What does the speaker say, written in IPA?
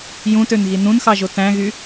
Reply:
j ũ t ø n ɣ i n ũ n x ɑ ʒ o t æ̃ ɣ y

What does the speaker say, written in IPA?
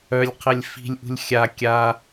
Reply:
œ lʲ qʰ ɛ lʲ f i̤ lʲ ʔ ṳ lʲ xʲ a kʲ a

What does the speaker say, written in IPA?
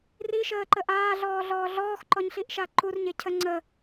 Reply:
r i ʃ əː ǃ ə ʔ aː ɮ ɔː ɮ ɔː ɮ ɔː x ǃ ɔ ɲ ɬ i ʔ ʃ a ǃ u r ɲ e cʰ ə ŋ͡ǀ ə

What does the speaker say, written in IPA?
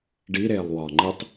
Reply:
ɖ i ɾ eː lˠ w ɒː ŋ͡ǃ i tˤ

